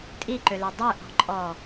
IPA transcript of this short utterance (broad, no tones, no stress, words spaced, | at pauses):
tʼiǃølø dˤøʔɔ̤ǃʼɔ